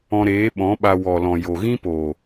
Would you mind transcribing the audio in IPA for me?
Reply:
ɔ̃˧ ɾ eː˨˦ ɓ ɔ̃˨˦ ɓ a˧ w ɔ˨ l ɔ̃˨ j o˨ ɣ ĩ˦ p o˨

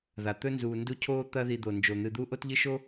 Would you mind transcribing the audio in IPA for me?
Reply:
ð a˩ t̪ ɵ˥ n z uː˨ n d u˦ cʰ oː˥ t̪ ɐ˦ ð i˨ d̪ o˩ n d͡ʒ o˩ n̪ ɨ˨ d̪ u˦ ʔ o˥ t ʎ ɨ˥ ʃ o˥

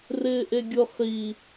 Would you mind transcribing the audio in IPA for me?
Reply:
r ɪː ʔ e ɡʲ ʊ χ i

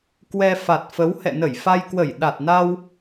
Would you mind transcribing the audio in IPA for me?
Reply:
k w ɛ˧ f a˨˩ t̚ f ə˨˦ w h ɛ̰˧˨ n ə˧˩ j f a˧ j k w ə˧˩ j ɗ a˨˩ t̚ n a˧ w

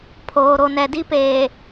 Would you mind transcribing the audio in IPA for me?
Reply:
pʰ oː˨ ɾ o˨ n ɛ˨ d i˦ p eː˨

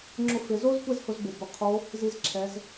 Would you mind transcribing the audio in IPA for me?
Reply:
ŋ͡ǁ ʊ˧ f ɪ˩˧ z o˥ z kʷ ɛ˥ z h ʊ˧ z b o˩ b ʊ˧ qʰ o˧˥ | z i˧ z ǁʰ ɛ˩˧ z

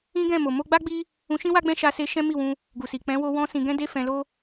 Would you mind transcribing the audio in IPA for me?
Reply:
ĩ˦ ɡ ɛ̃˦˨ m o˨ m o˧ ɡ͡b a˦ ɡ͡b i˦ | ũ˧ ʃ ĩ˦ w a˦ ɡ͡b ɛ̃˦ ʃ a˧ s e˧ ʃ ɛ̃˦ m i˦˨ w ũ˧ | ɡ u˨ s i˨ k͡p ɛ̃˨˦ w o˧ w ɔ̃˧ s ĩ˧ ɡ ɛ̃˦ d e˦ f ɛ̃˧ l o˦

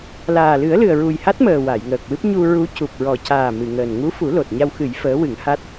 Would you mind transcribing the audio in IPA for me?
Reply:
l aː˨˩ l ɨ˨˩˦ ə̯ l ɨ˨˩ ə̯ ɹ u˨˩ j h a˦˥ t̚ m əː˨˩ w a˨˩˨ j ŋ əː˨˩ k̚ w ɨ˦˥ p̚ ɲ u˧ ɹ u˧˥ c u˨˩ p̚ ɹ ɔ˨˩ c aː˨˩ m ɨ˨˩˨ ŋ əː˨˩ n ŋ u˧˥ f u˨˩˦ l o˨˩ t̚ ɲ a˧ w x ɨ˨˩˦ j f əː˧˥ w ɨ˨˩˦ ŋ h a˦˥ t̚

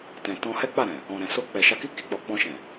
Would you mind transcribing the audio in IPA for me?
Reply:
t ɛ̃˨ t ɔ̃˧ h ɛ˦ k͡p a˦˨ ɾ ɛ̃˨ | ɔ̃˨ ɾ ɛ̃˨ s o˧ k͡p ɛ˨ ʃ a˧ k i˦ k i˧ k͡p ɔ˨ k͡p ɔ̃˧ ʃ ɛ̃˨

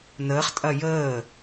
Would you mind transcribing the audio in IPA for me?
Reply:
n əː χ tʼ ɐ j əː

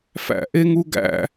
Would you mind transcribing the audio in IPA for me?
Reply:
f æ̰ ʔ e ŋ u ɡ æ̰

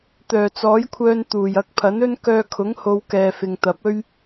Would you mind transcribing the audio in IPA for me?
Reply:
t̪ œː˨˩ t͡s ɔː˨˥ j kʷʰ œː˧ n t̪ uː˨˩ j ɐ˨˥ k̚ pʰ ɐ˨˥ n ɵ˥ n k œː˧ kʰ ʊ˨˥ ŋ h o˨ w k ɛː˨ f ɪ˨ ŋ t̪ ɐ˨˥ p̚ ɵ˥ ɥ

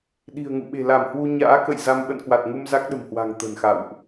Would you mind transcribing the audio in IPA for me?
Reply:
ɗ i̤˨˩ ə̯ ŋ ṵ˧˨ ɓ e̤˨˩ l a˧˩ m h w u˧ ɲ a̰ː˧˥ k ə̰˧˨ j z a˧ m ɓ ə̰˧˨ n k w a˨˩ t̚ ŋ u˧ m z a˦˥ k̚ ɗ ə̤˨˩ m h w a̤˨˩ ŋ t̪ ə̤˨˩ n x a̰˧˨ w ʔ

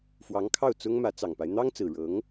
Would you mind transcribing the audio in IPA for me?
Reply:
f w ɑ˧˥ ŋ kʰ ɑ˥˩ ʊ̯ t͡s ʊ˥ ŋ m ä˧˥ t͡s ɑ˨˩ ŋ p a˦ ɪ̯ n̪ ɑ˥ ŋ t͡s ɹ̩˨˩ ɻ ɤ˧˥ ŋ

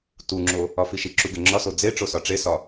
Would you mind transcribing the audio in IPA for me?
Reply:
t u ŋ͡ǁ o | ɒ f i ʃ i ǁ u ɡ e ŋ͡ǁ ɒ s o d͡z e ʈ͡ʂ o s ɒ ʈ͡ʂ e s ɒ

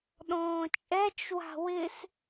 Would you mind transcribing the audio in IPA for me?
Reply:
ɗ ɔ̃ː t͡ʃʼ ɛ t͡ʃ w a̤ w ɪ s

